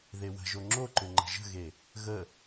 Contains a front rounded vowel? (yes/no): yes